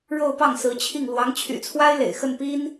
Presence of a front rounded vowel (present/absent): present